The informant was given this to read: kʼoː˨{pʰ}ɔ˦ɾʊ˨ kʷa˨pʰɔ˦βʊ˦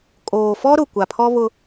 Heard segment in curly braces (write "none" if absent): f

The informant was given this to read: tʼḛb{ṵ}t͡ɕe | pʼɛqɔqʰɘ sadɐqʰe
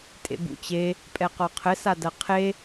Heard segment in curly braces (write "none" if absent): ṵ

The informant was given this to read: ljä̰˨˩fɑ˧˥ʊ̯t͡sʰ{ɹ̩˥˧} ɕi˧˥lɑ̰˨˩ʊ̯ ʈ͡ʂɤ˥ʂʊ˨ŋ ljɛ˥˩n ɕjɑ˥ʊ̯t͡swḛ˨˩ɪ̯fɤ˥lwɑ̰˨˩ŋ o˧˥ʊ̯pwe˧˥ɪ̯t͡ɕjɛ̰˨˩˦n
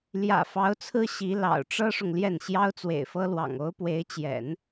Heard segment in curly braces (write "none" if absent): ɹ̩˥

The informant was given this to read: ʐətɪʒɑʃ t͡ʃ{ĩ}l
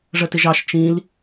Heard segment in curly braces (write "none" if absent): ĩ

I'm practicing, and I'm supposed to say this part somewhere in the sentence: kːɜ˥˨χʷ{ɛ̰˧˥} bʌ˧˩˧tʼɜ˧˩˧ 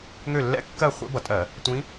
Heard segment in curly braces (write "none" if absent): ɛ̰˧˥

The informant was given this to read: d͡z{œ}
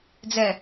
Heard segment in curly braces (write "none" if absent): ɛ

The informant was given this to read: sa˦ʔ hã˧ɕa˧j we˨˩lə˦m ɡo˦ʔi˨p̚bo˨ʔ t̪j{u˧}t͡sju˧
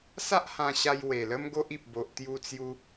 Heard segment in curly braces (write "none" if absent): u˧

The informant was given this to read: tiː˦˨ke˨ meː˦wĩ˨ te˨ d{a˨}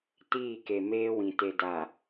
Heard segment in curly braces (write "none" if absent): a˨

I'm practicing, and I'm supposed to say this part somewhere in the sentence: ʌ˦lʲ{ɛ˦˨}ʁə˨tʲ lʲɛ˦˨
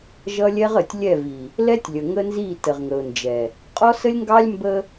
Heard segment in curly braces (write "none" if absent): ɛ˦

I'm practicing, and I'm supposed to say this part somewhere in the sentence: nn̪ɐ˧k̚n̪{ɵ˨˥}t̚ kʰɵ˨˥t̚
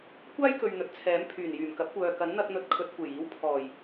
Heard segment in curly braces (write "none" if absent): ɵ˨˥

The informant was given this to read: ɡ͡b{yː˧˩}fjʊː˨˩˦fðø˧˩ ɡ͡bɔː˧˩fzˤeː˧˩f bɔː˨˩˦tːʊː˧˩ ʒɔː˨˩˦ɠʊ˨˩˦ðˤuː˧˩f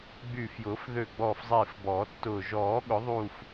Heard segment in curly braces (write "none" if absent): yː˧˩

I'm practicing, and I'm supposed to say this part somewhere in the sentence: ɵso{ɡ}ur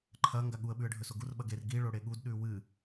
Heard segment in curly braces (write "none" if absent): ɡ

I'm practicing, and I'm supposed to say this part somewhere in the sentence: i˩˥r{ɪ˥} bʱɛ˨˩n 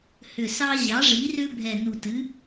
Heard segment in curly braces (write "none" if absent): ʏ˥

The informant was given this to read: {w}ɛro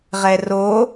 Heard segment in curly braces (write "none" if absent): ʁ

